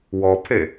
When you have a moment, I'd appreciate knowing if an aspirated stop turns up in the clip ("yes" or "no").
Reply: yes